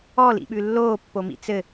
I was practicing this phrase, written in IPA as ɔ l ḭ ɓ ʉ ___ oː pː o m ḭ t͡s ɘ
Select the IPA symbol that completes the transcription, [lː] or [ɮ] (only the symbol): lː